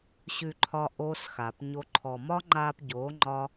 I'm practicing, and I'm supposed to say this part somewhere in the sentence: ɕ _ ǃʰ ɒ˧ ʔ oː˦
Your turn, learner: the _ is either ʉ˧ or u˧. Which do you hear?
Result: ʉ˧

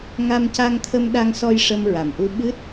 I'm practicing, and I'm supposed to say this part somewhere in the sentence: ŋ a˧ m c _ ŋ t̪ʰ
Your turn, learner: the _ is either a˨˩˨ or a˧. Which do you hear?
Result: a˧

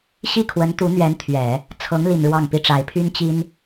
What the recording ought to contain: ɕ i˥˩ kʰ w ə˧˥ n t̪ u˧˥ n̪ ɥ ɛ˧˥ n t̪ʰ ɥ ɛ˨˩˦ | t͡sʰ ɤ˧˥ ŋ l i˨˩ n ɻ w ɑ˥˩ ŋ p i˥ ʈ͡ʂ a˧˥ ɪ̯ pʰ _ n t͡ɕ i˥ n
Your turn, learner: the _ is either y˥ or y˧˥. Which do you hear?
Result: y˥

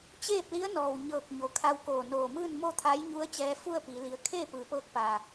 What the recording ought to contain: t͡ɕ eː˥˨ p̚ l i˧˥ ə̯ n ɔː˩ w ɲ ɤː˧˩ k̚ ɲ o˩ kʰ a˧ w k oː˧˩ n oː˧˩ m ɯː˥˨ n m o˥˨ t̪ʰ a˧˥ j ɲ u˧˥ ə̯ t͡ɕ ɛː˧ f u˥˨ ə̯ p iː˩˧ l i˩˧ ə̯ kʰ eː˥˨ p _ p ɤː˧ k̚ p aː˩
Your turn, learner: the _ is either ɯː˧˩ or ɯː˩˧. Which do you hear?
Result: ɯː˩˧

